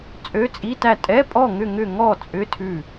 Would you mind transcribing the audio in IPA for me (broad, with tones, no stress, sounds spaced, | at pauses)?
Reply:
t͡sʼ ø˧˥˧ t͡sʼ i˧˥˧ t æ˥˨ tʼ ɛ˧˥˧ pʼ ɔ˥˨ ŋ ʏ˥˨ ŋ ʏ˥˨ ŋ ɔ˥˨ t͡sʼ ʏ˧˥˧ tʰ ʉ˥˨